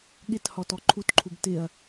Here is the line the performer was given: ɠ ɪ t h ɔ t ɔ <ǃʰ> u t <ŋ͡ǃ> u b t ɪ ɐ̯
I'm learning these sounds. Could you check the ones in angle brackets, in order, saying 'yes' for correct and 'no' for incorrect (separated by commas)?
yes, no